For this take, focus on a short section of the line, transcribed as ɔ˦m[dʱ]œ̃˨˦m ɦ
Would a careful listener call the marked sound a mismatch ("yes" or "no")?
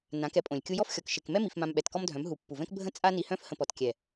no